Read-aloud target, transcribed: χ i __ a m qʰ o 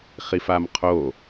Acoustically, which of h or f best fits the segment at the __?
f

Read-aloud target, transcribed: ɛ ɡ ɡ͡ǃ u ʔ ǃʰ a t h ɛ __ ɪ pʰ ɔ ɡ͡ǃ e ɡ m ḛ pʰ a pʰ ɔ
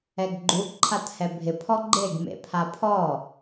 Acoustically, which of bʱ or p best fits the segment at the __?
bʱ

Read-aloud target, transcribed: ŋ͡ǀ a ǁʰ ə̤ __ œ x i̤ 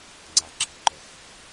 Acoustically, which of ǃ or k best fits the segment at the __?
ǃ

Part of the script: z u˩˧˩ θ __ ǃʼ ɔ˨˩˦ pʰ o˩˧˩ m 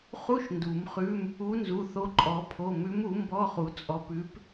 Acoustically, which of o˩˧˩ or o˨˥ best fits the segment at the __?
o˨˥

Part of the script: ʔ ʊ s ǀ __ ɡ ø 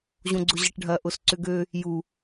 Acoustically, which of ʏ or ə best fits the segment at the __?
ʏ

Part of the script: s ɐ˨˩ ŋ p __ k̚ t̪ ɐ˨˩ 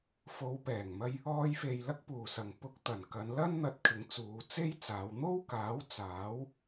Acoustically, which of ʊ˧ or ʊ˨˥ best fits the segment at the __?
ʊ˧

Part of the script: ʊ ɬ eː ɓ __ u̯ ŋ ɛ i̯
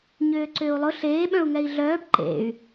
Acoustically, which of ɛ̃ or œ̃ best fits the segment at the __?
œ̃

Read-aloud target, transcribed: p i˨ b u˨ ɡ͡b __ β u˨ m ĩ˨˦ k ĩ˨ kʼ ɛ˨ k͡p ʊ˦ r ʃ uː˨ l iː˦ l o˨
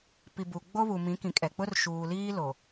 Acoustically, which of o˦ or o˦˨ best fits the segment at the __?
o˦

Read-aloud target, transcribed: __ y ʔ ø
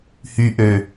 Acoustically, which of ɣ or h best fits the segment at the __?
h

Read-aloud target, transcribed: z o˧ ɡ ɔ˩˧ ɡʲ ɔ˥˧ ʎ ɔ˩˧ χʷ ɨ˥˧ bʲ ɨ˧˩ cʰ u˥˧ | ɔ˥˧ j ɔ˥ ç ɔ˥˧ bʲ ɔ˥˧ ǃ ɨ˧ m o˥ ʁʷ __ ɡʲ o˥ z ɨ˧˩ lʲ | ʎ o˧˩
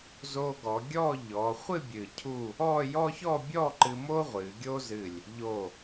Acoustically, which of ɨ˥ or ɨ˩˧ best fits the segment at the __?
ɨ˩˧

